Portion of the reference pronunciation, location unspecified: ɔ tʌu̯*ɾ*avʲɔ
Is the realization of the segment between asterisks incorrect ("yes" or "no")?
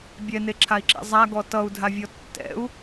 yes